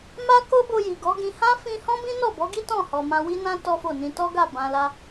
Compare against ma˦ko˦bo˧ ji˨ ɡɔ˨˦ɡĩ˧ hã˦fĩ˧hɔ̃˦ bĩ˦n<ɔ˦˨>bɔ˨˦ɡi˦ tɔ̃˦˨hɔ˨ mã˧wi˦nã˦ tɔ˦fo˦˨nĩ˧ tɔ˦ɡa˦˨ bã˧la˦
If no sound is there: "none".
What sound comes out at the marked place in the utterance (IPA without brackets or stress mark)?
ɔ˦˨